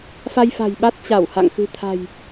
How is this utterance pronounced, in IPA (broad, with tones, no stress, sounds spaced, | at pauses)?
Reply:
f a˧ j f a̤˨˩ j ɓ a˦˥ t̚ t͡ɕ a˧˩ w h a̰˧˨ ŋ x ɨ̤˨˩ t̪ʰ a̤˨˩ j